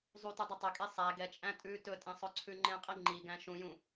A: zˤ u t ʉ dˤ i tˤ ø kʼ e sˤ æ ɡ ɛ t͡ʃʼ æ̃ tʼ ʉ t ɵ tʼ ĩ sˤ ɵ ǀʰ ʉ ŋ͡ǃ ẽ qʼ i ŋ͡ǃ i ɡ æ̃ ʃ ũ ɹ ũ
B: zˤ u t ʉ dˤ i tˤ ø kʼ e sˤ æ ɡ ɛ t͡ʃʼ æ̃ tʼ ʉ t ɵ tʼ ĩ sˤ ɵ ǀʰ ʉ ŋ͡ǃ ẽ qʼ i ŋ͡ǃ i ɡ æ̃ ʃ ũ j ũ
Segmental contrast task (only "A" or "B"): B